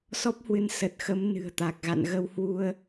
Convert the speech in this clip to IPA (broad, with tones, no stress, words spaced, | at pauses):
sɔ˦˥p̚hwɨ˨˦n sə˨˩t̚xə˨˦m nɨ̤˨˩ə̯t̪a˨˩k̚ɣa̰˧˨n ɣə˧whwu˧ə̯